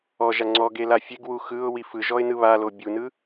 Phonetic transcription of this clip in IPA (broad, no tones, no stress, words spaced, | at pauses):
ɔʒa ŋ͡ǀɔɡe lafʲeɡwu xɯʊ̯ wifɯʒɔɪ̯ nɯβalo bʲunɯ